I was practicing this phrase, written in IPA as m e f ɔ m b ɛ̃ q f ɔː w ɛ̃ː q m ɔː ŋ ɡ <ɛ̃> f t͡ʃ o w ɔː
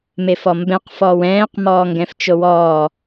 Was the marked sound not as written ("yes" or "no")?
no